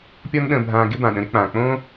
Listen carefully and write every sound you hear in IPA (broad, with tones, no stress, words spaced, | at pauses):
pʲɔ˥nɗə̃ː˧bʱãː˧ ɡɪ˥bã˩ ɗə̃˧ɾɪ˧k͡pãː˩k͡põː˥